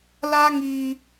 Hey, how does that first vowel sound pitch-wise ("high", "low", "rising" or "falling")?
high